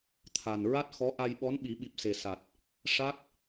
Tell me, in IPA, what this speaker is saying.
t̪ʰ a˨˩ n ɹ a˦˥ t̚ x ɔ˧˥ ʔ a˧ j ɓ ɔ˧˥ n ɓ i˨˩˦ ɓ i˨˩ p̚ s e˨˩ s a˨˩ t̚ | ʂ a˦˥ k̚

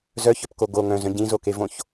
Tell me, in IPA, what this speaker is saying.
z œ ç œ p k o ɡ o ŋ œ̃ z œ̃ ɟ ĩ z o k e v õ ç

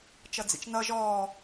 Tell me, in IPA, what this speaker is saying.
t͡ʃ ʌ d͡z ḭ t͡ʃ n ʌ ʒ ɔː

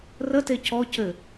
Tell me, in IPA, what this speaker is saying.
r ə t e c ɔ c ɘ

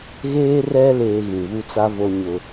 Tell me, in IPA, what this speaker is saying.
ɣ eː˦ r ɛ˦ l eː˦ ɣ ĩ˨ β u˦ t͡s a˦ v o˦ ɲ ʊ˦

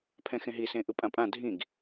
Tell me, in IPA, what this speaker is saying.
pʰ ɛ̃ x ẽ ɦ i s ẽ ʔ ɯ pʼ ã pʼ ã dʱ ĩ ɡ

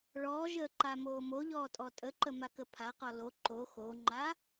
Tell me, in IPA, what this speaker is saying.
ɭ ɔː ʒ əː ǃ a m oː m o ʎ ɔː tʼ ɔ tʼ ə ǃ ə m a k ə pʰ a q ɔ l o ǃ o x o ŋ͡ǃ a

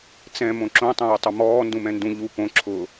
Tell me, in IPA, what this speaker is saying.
t͡s ɛ̃ m õ ǁ õ tˤ ɛ̃ w ʊ tˤ ʊ m ɔː n d ũ m ɛ̃ n d ũ ʎ u p õ ǁʰ ʊ

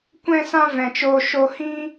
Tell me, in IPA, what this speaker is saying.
kʷ ɛ̃˦ s ã˦ v ɛ̃˨ t͡ʃ oː˧ ʃ o˧ h ĩ˦

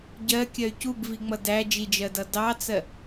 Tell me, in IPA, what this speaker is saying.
ɟ ɜ kʲ ɜ y̯ c u b v i ŋ͡m ʌ d æ d͡ʒ i d͡ʒ ɜ d ʌ d ɑ t͡s ɜ

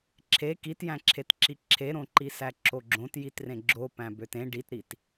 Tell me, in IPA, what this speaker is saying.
ǁʰ e k i t j æ̃ ǁʰ e t ǁ i ǁʰ e ɾ õ ǃ i s æ ǁ o ɡ͡ǁ õ t j i t r ẽ ɡ͡ǁ o p æ̃ b ø t ẽ ɖ i t ɾ i t

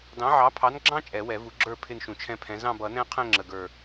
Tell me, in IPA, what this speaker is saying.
d ɑ̃˨˥ ʕ ɑ˨˥ pʰ ɑ˨˥ n ɡ͡ǁ ɑ̃˦ t͡ʃʼ ɛ˨˩˦ w ɛ˨˩˦ v u˨˩˦ ɡ͡ǁ ə˞˦˨ pʰ ɪ˦˨ n ʃ ũ˨˩ t͡ʃʰ ɛ̃˦ pʰ ɛ̃˨˥ z ɑ̃˦˨ b ʌ˨˩˦ n ɛ̃˦ qʰ ɛ̃˦˨ ŋ͡ǁ ə˨˩ ɡ ə˞˨˩

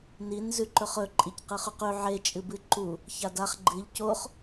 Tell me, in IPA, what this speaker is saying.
n i n z ʉ ǃ ɵ χ ɵ ǃʼ i c q ɨ χ ʉ q ʉ ʕ e t͡ʃʼ ɨ b ɨ ǃ u | ç a d a χ ɡ͡ǃ ɨ ʎ c o χ

